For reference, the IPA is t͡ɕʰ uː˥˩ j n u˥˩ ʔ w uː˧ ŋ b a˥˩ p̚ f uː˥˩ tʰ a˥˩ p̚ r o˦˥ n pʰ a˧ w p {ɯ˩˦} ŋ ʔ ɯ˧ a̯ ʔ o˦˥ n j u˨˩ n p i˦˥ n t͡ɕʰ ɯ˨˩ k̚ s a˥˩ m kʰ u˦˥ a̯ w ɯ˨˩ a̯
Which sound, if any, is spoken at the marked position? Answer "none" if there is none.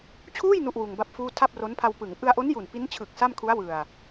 ɯ˩˦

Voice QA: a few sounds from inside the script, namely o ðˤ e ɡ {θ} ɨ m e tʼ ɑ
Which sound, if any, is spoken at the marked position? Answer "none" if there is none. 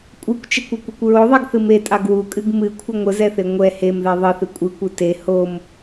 θ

